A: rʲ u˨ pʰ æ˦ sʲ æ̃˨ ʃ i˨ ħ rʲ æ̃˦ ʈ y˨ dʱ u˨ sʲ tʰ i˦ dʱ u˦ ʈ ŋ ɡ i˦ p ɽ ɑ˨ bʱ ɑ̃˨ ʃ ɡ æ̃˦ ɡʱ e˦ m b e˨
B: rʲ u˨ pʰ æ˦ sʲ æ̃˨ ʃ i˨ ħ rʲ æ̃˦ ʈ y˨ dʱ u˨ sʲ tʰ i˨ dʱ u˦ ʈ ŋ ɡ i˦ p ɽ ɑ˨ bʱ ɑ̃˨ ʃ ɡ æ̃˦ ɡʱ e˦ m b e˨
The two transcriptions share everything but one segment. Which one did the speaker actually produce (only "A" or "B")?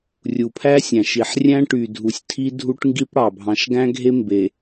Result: A